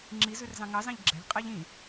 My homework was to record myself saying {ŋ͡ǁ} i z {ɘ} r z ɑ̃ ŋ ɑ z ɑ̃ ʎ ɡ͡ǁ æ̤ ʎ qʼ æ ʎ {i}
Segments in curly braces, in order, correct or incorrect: correct, incorrect: ʉ, incorrect: ĩ

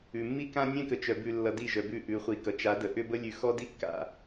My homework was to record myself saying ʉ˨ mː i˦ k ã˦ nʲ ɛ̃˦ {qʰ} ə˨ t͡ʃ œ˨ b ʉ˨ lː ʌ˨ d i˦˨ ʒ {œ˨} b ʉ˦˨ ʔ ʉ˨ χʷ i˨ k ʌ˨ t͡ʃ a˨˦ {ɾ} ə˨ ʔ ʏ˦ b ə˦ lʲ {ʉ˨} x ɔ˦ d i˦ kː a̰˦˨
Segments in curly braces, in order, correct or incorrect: incorrect: k, correct, incorrect: d, correct

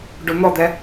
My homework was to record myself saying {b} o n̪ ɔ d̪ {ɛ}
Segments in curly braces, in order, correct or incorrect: incorrect: ɖ, correct

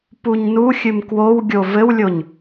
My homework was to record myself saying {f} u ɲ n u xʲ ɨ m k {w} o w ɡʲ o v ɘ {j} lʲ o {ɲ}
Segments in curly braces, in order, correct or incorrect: incorrect: p, correct, incorrect: w, correct

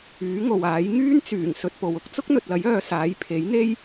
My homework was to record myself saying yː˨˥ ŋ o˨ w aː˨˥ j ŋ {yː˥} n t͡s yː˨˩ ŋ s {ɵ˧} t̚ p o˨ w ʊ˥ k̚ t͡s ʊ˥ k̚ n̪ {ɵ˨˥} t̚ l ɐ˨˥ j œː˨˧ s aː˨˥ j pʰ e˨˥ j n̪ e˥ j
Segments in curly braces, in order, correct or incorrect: correct, correct, incorrect: ɵ˨

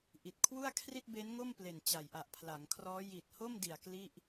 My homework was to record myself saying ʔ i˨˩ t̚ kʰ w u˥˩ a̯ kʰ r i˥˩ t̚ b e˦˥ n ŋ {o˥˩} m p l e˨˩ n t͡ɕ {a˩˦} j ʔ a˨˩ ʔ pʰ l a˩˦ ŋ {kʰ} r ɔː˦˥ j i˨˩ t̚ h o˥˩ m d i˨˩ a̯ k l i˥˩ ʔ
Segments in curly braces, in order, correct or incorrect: correct, incorrect: a˨˩, correct

